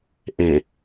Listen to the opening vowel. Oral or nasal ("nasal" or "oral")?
nasal